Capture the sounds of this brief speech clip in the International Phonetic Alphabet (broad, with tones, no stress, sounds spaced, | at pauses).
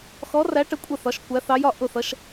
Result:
x ɔ˧˥ r æ˧˥ ʈ ə˧˥ kʷʼ ə˥˨ θ ɒ˧˥ ʃ kʷ æ˧˥ θ ɑ˧˥ j ɒ˥˨ ʔ ʊ˥˨ θ ʌ˧˥ ʃ